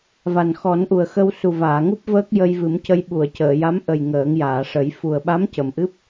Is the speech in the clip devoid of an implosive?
no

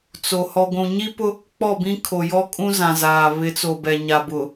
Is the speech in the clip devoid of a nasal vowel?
no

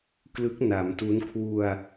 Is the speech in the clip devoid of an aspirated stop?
no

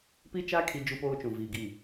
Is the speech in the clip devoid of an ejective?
yes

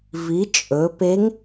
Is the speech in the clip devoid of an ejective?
no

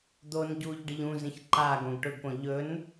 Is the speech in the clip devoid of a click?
no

